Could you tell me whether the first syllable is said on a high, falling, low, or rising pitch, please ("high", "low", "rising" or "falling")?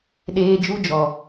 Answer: high